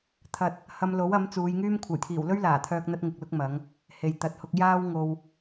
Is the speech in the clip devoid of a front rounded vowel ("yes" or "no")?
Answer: no